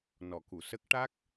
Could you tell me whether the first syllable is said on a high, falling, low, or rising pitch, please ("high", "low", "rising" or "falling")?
low